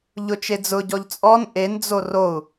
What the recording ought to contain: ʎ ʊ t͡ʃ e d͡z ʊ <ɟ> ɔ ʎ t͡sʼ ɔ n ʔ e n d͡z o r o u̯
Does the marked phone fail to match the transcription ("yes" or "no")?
no